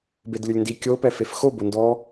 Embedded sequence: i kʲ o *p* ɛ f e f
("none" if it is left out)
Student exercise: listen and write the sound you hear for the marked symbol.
p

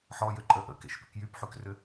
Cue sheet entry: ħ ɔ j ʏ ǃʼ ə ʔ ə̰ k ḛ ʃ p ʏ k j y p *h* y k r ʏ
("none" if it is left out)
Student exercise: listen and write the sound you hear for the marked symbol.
ħ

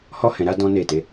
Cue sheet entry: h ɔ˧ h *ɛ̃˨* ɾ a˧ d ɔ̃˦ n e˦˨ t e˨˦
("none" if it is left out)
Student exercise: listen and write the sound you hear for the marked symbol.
ɛ̃˨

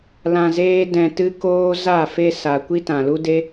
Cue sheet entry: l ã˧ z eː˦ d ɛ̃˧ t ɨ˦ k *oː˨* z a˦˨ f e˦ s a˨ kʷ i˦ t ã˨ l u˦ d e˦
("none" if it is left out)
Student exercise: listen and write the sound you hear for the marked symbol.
oː˦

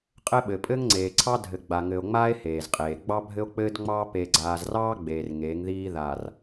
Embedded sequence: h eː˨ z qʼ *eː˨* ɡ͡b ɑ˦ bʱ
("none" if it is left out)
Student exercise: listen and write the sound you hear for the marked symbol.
eː˨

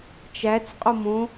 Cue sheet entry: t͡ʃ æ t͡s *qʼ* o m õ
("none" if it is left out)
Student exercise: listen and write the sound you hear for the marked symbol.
qʼ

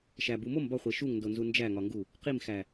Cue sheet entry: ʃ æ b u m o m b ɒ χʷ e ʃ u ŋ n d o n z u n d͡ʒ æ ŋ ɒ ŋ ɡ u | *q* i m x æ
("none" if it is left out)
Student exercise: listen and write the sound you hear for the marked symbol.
q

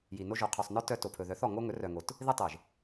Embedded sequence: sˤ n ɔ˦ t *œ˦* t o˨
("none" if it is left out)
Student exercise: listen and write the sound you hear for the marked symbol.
œ˦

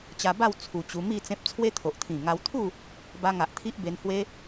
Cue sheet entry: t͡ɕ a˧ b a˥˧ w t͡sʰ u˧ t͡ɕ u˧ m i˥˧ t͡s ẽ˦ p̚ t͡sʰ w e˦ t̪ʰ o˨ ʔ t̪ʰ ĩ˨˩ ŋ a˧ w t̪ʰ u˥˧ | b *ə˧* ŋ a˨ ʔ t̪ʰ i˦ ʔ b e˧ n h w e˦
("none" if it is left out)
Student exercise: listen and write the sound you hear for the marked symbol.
a˧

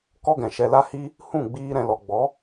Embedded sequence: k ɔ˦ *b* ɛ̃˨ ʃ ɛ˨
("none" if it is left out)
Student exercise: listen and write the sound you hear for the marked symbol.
ɡ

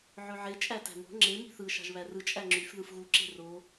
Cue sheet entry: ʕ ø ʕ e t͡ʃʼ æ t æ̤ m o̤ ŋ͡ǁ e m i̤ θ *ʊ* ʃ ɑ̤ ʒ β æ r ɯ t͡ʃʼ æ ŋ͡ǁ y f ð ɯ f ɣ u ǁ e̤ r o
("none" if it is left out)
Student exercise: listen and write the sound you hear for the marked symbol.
ɯ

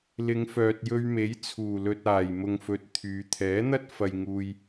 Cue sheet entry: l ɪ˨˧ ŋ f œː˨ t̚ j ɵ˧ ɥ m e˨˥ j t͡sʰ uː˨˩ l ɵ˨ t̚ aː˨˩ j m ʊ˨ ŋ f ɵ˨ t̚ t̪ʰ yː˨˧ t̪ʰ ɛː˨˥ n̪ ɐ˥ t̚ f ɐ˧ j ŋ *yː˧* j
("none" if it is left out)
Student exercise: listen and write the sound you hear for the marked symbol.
uː˧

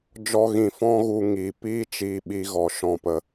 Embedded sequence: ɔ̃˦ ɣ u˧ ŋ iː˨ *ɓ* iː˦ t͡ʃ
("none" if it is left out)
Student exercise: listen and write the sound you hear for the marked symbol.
p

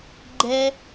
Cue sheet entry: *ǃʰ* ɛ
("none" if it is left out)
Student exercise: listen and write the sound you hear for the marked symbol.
ɡ͡ǃ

